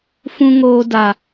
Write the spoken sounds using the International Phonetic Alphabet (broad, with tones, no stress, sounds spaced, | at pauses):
f ũ˦ ŋ oː˦ d a˦